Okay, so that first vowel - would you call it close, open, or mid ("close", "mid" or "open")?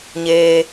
mid